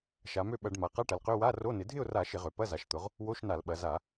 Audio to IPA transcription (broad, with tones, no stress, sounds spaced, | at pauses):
ʃ a˩˧ m ø˥˨ ɓ ɐ˧˩˧ ɖ m a˩˧ q a˧˥˧ ʈ ɐ˩˧ l q ø˧˥˧ w a˧˥˧ r o˧˥˧ n ɪ˩˧ dʱ ɪ˥˨ ʊ̯ r a˧˩˧ ʃ ɪ˧˩˧ ʁ ø˩˧ p ɐ˧˥˧ z a˩˧ ʃ t̪ ʊ˩˧ ʁ | w o˧˥˧ ʃ n a˧˩˧ l ɓ ɐ˩˧ z a˧˩˧